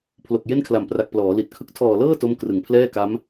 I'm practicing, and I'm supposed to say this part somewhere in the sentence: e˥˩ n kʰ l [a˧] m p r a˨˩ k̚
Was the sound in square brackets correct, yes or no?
no